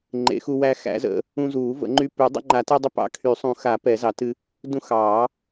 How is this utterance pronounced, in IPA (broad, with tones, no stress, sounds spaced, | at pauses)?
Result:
ŋ͡ǃ ḛ˨˩˦ x u˧ w æ˧ x æ̰˨˩˦ z ə̰˨˩˦ | ũ˧ z uː˨˩˦ v ə̰˨˩˦ ŋ͡ǃ y˧ p y˨˩˦ dˤ ə̰˧ ŋ͡ǃ a˨˩˦ t e˧ dˤ ə˧ p ɑ̰˧ kʰ y˨˩˦ sˤ ũ˨˩˦ x a˨˩˦ p ɛ˨˩˦ z ɑ˨˩˦ t ɨ˧ | d ũ˧ x ɑː˨˩˦